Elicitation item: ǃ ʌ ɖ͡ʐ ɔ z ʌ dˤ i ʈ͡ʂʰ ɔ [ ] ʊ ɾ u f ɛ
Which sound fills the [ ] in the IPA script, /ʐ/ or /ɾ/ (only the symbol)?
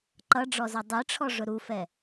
ʐ